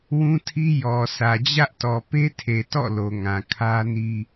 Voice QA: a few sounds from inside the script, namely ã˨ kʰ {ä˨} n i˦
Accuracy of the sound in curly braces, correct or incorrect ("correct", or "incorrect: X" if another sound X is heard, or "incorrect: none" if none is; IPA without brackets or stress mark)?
incorrect: ä˦